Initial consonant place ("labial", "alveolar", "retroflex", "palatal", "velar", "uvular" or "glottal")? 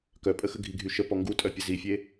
velar